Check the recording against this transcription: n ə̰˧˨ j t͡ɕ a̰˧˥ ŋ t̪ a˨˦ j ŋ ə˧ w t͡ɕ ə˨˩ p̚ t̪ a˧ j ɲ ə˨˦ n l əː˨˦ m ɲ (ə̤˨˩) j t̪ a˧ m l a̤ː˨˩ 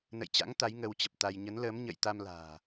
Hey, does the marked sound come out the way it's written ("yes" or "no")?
no